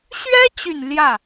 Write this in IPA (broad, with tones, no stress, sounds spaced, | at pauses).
ɕ ɥ ɛ˥ t͡ɕ y˨˩ n l j ä˥˩